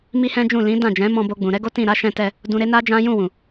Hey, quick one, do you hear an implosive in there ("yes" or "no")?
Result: no